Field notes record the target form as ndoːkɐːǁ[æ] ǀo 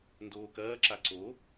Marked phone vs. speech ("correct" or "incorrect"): incorrect